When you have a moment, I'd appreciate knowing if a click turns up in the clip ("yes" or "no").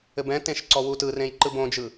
yes